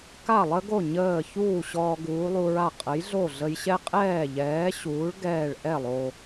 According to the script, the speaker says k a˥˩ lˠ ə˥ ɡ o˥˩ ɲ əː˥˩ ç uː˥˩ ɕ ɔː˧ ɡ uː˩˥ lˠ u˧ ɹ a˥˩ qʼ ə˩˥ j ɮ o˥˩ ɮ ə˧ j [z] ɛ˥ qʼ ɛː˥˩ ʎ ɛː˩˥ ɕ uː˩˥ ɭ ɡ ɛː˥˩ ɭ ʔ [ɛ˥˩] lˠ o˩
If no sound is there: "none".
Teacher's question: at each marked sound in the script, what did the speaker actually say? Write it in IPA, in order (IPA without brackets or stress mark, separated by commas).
ɕ, ɛ˥˩